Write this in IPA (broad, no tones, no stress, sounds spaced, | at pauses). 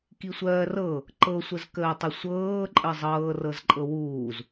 k i sʷ ɜː r ɤ | ǃ ɤ sʷ ə z k əː tˤ ə sʷ ɤː ǃʼ ə zˤ ɤː r ɤ z ǃʼ ɤ w uː z